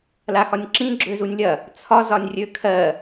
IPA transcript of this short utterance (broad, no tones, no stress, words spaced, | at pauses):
laxɒnʲǁĩ ɡ͡ǁøzunʲlʲɐ | t͡sʰɒ zɒnʲrʲøkʰɜ